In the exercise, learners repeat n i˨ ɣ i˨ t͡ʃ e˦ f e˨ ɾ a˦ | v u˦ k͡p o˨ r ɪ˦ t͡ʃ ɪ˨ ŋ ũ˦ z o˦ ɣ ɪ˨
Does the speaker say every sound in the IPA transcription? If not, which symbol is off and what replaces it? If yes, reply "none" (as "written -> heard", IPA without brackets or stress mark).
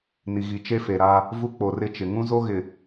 none